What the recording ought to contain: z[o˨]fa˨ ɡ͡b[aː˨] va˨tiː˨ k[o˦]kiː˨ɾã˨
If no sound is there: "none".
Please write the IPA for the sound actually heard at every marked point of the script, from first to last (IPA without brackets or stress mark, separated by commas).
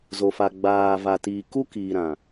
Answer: o˨, aː˨, u˦